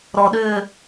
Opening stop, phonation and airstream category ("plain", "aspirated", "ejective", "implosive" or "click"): implosive